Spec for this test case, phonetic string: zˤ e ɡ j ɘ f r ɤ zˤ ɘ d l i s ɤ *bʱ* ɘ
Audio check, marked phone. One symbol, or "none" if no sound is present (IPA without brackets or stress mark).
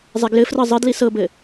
b